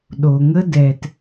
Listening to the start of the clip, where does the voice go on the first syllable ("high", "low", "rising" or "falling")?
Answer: low